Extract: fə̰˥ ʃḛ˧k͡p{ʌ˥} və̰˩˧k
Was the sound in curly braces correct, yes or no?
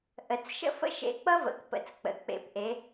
yes